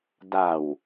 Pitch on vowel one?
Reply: low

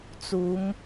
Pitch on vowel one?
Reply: rising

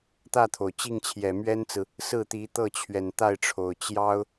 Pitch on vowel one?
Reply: falling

